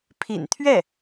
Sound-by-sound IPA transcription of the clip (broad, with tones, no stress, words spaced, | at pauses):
pʰḭ˨˩nt̪ʰɥɛ˥˩